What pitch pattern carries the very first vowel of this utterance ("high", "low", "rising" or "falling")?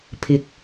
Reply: low